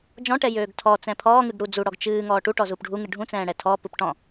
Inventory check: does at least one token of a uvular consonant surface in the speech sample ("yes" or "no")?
no